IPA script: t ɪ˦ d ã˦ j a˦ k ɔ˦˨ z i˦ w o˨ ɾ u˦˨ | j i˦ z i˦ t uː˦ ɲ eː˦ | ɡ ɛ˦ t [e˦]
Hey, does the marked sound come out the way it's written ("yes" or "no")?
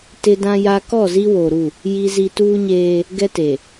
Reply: no